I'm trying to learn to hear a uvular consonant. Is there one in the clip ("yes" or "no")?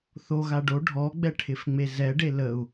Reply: no